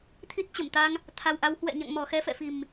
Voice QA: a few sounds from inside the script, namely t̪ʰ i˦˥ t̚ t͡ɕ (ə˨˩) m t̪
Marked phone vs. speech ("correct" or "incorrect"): incorrect